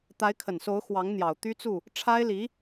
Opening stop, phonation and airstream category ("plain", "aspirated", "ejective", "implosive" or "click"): plain